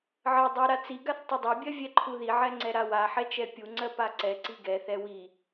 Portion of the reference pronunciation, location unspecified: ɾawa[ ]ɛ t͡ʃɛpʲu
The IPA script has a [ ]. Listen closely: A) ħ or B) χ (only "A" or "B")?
A